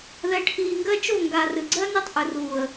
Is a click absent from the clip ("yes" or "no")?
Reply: no